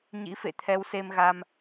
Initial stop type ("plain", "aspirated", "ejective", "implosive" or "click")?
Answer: aspirated